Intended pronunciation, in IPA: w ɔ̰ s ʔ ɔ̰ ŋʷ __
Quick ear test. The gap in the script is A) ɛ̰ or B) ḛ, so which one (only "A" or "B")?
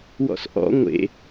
B